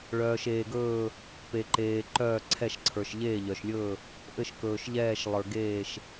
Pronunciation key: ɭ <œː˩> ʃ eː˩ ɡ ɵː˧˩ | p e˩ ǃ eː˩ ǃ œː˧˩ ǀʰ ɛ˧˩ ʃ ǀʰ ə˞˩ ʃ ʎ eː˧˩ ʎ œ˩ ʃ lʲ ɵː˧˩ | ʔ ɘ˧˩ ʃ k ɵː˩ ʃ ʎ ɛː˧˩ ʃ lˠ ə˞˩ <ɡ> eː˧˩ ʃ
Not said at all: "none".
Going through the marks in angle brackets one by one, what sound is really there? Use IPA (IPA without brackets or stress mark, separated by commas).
œː˩, ɡ